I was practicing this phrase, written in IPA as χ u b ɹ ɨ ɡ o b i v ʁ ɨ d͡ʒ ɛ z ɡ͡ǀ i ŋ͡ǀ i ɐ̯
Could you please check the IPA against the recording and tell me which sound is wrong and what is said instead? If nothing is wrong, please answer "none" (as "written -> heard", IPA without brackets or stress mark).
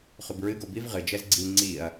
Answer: none